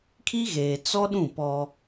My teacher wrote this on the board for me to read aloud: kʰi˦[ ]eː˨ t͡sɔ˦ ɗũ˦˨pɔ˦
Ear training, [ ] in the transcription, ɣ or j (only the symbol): ɣ